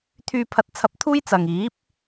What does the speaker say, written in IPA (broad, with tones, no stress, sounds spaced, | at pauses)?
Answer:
t̪ʰ yː˧ pʰ ɐ˧ t̚ t͡sʰ ɐ˧ p̚ t̪ʰ uː˥ j t͡s ɐ˨ ŋ iː˨˥ p̚